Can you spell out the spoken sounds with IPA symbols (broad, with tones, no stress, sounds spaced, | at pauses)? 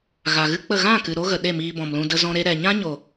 ɣ a˨ ɣ ɨ˦ k͡p ə˦˨ ɣ ã˦˨ k ɨ˨ ɾ o˦ ɣ ə˨ ɗ e˦˨ m iː˧ b ɔ̃˨ m l ũ˧ d ə˧ z ɔ̃˧ ɾ e˧ ɾ ɛ˨ ɲ ã˦ ɲ o˨